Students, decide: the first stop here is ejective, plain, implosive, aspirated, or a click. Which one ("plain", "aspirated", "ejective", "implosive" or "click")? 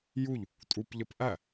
ejective